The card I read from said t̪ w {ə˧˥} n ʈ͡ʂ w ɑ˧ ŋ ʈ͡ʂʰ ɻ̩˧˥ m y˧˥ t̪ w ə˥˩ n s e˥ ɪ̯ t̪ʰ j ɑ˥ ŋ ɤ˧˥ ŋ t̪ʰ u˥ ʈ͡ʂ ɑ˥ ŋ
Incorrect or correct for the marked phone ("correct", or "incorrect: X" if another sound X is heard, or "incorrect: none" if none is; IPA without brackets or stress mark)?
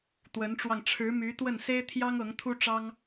correct